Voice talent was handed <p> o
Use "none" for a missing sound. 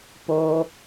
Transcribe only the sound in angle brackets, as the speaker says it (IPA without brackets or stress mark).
p